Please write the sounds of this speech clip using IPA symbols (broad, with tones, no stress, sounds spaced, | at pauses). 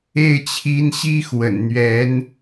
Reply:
e˥˩ ɪ̯ t͡ɕʰ i˧˥ n ɕ i˥ x w ə̰˨˩ n n̪ ɥ ɛ˧˥ n